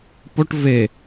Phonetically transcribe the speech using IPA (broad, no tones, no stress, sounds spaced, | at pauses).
p o ʈ v e